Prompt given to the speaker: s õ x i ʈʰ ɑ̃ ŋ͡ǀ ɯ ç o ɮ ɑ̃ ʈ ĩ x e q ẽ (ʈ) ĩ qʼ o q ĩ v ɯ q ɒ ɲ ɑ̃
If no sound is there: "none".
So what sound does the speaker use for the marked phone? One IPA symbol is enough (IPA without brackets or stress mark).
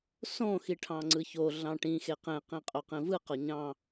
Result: q